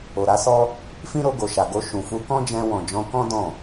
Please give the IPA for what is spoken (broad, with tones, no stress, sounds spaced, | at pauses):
o˨ ɾ a˨˦ s ɔ˦ | f ĩ˦ ɾ o˧ ɡ o˨ ʃ a˨ ɡ o˧ ʃ ũ˨ f u˧ k ɔ̃˦ d͡ʒ ɛ̃˧ w ɔ̃˨ d͡ʒ ɔ̃˧ k ɔ̃˦ d ɔ̃˦˨